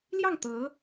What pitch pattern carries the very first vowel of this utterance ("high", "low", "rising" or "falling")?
falling